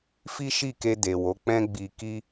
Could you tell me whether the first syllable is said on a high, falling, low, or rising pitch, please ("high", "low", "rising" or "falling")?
high